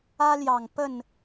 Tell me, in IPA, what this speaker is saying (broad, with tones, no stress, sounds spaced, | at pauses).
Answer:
ä˦ l j ɑ˨˩ ŋ p ə˥˨ n